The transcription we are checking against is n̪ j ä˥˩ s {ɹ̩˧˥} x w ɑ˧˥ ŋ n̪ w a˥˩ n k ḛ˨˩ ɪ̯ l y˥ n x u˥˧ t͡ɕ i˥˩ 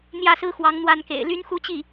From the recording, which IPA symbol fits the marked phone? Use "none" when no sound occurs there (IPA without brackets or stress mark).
ɹ̩˥